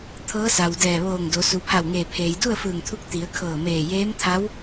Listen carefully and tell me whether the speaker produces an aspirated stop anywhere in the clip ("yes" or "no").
yes